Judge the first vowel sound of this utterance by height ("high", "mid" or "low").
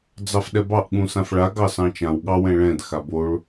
low